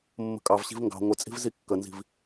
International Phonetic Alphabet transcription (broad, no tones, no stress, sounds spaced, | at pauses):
mː ə̤ kʼ ɑ v ɕ i̤ v ŋ ɡ ɑ̤ ŋʷ ɪ t͡sʼ i̤ v z i kː ə n z i̤ v